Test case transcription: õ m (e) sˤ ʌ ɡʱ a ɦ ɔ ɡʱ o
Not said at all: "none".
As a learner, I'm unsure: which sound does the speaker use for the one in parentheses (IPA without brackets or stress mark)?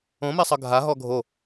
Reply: e